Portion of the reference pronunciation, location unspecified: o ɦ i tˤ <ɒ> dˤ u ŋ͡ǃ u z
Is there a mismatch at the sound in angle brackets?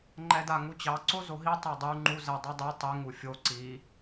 yes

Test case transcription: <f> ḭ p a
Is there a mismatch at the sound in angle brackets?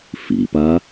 no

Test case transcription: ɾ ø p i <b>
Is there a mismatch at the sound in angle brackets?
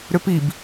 no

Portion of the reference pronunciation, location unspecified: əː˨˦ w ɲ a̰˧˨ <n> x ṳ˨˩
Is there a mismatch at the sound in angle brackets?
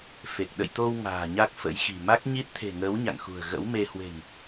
yes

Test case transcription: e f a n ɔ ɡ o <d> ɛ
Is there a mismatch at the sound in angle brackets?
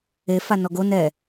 yes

